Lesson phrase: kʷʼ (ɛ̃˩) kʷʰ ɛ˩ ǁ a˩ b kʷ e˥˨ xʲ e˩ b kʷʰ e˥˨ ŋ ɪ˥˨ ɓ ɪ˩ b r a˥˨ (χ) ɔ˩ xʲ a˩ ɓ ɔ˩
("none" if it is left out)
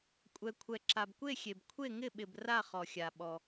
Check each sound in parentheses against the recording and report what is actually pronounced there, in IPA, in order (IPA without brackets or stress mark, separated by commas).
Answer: ɛ˩, χ